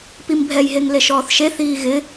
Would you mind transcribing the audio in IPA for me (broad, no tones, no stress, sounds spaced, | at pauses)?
p i m bʱ ɛ j ɦ e ŋ l e ʃ ɔː θ ʃ e θ iː ɣ ɪ